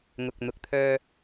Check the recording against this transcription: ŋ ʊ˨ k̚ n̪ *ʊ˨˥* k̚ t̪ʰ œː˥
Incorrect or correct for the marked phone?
incorrect: ʊ˧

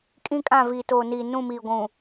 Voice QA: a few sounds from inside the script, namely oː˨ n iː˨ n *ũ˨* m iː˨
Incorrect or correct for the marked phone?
incorrect: ũ˦˨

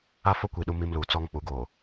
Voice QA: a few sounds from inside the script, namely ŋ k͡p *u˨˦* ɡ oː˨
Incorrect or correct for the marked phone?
correct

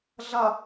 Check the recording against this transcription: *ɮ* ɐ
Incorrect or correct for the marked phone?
correct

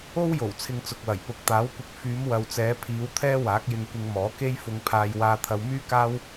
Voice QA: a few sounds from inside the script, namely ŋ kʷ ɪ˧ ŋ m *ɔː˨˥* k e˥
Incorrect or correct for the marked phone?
correct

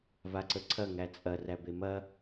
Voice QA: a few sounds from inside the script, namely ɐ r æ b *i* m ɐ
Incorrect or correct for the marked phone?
incorrect: e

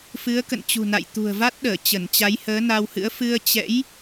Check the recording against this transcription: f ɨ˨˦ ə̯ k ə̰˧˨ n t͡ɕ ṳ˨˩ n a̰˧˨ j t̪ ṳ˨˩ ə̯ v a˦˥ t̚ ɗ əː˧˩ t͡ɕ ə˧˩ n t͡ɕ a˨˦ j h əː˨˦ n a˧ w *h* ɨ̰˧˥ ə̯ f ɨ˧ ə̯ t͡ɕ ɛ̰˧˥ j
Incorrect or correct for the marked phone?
correct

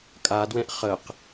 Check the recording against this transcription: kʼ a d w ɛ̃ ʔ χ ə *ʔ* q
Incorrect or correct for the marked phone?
incorrect: none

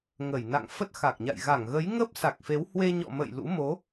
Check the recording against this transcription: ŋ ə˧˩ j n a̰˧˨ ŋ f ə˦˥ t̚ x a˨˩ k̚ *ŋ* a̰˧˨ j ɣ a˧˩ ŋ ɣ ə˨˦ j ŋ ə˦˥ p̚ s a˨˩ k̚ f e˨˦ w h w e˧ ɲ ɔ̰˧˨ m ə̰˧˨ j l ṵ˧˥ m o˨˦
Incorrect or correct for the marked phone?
incorrect: ɲ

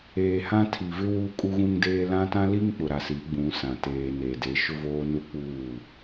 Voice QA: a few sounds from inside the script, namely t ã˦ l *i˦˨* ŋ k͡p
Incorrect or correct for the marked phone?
incorrect: i˦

